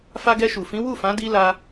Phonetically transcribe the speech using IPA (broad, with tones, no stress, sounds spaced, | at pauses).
f a˧ ɡ ɛ˧ ʃ u˨ f ĩ˨˦ w u˦˨ f ã˨˦ d i˧ l a˧